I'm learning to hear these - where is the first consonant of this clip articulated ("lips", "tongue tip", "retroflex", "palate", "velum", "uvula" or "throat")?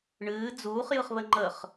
retroflex